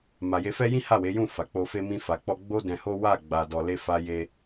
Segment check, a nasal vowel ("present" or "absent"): present